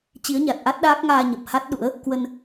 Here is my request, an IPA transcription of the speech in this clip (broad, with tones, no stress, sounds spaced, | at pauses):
t͡ɕ i˨˦ ə̯ ɲ a˨˩ t̚ ʔ a˦˥ t̚ ɗ aː˦˥ k̚ ŋ aː˧ ɲ ə˨˩ p̚ h a˦˥ t̚ ɗ ṵ˧˥ ə̯ | k w ə˧ n